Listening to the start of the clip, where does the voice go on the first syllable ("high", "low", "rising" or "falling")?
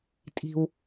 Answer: high